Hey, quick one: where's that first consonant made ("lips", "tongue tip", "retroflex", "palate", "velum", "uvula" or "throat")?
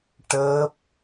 retroflex